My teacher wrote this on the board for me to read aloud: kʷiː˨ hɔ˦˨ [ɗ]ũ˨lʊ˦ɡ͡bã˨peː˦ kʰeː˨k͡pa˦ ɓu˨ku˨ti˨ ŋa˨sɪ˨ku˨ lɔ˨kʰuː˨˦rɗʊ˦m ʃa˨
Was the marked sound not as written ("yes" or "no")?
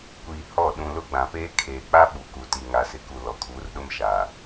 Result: no